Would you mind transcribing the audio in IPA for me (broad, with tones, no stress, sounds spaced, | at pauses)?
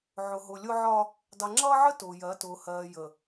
ʕ ʊ˨ ɦ ʊ˨ lʲ ʊ˦ ʕ ɒ˦ | dˤ i˨ ŋ͡ǁ ʌː˦ ʕ ə˦ t ʊː˨ j ɜ˨˦ t ʊː˨ h ɜː˨ j ə˨